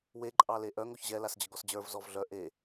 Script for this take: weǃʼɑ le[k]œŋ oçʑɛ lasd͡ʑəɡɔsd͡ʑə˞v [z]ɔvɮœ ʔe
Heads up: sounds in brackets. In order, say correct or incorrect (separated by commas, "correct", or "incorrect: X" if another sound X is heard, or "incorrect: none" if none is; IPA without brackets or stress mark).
incorrect: ʔ, correct